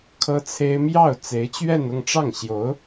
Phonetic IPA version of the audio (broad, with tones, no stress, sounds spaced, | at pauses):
kʰ ɤ˥ t͡sʰ e˥ ɪ̯ m j ɑ˥˩ ʊ̯ t͡s e˧˥ ɪ̯ t͡ɕ ɥ ɛ˥˧ n ʊ˥˧ ŋ ʈ͡ʂ ɑ˥˩ ŋ ɕ j o˧˥ ʊ̯